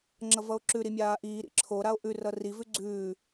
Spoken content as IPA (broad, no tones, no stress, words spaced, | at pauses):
ŋ͡ǁʌvʌo̯ǁʉ ɾimʲaːʔiː ɾḭǁʰo ɾao̯ʔʉr ʌri vʉɡ͡ǀʉː